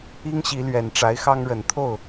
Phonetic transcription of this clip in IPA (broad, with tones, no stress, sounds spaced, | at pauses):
i˥ ŋ ɕ i˧˥ l ɥ ɛ˨˩ n ʈ͡ʂ a˧˥ ɪ̯ x ɑ˥ ŋ ɻ ə˨˩ n t̪ʰ o˥˩ ʊ̯